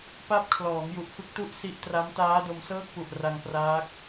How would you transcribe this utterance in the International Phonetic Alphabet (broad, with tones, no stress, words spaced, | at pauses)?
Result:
pa˦˥p̚kʰlɔː˩˦ŋ ju˨˩ʔfɯ˦˥k̚tu˥˩ʔ si˦˥ʔtra˦˥m taː˦˥do˧msɤː˥˩k̚pu˨˩ʔ ra˧ŋpraː˦˥k̚